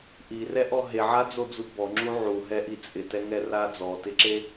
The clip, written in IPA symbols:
ʔ i r ɛ ʔ ɔ ɦ e ʕ a d͡z o d͡z u b ɔ ŋ͡ǁ u ʕ u ɦ ɛ ʔ i t͡sʼ ɪ t ɛ ŋ ɛ r a d͡z ɔ t ɪ ǁ e

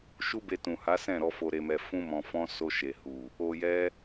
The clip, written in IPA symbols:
ʃ u˦ b e˧ t ũ˨ h a˨˦ s ɛ̃˦˨ ɾ ɔ˨˦ f o˧ ɾ e˧ m ɛ˧ f ũ˦ m ɔ̃˧ f ɔ̃˦ s o˧ ʃ e˨ h u˨ | o˧ j ɛ˦

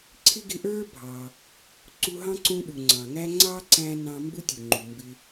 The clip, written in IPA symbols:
ǀʰ ɪ˥ ɡ ɪ˦ ʔ ə˞˥ bʱ ɑ˨ | ǀ u˦ ɦ ɑ̃˥ ǀ ũ˦ ɗ u˨ ŋ͡ǀ ɑ̃˨ ŋ æ˥ ŋ͡ǀ ɑ˥ ǀ æ̃˦ n ɑ̃˦ m b u˥ tʲ u˨ ŋ͡ǃ u˨ m b ɪ˦

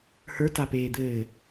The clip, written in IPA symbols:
h ə˞ t a p eː d̪ ɘː

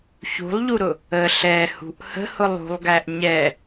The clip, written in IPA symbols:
ç ṳ lˠ ʎ u ɾ ʊ | ə ɬ ɛ h ṳ ʔ h ə̤ h ʊ lˠ ṳ lˠ ɡ æ ʔ ɲ ɛ

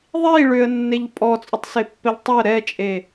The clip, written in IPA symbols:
ðˤ i ɭ ʏ ə̯ nː e ʎ pʼ ɔ t͡sʼ ʊ tˤ s e pː ɛ ʎ tˤ ʏ ə̯ ɾ ɛ t͡ʃʼ e

